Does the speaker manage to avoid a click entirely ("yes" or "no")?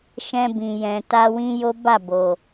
yes